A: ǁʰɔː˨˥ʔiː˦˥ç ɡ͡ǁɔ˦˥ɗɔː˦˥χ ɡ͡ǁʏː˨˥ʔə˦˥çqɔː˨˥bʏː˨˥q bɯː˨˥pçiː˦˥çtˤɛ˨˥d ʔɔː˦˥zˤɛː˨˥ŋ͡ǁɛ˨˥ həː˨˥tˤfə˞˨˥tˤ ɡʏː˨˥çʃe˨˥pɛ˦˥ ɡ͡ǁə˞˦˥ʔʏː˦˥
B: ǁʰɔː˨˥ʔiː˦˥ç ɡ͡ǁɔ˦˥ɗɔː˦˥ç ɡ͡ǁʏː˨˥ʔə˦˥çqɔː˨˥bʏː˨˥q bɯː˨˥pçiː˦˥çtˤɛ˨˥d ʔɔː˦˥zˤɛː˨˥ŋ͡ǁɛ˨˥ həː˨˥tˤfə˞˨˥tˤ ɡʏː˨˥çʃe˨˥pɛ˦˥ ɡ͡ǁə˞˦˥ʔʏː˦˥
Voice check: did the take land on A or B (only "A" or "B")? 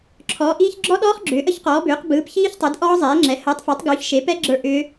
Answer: A